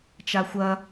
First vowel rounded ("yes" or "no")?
no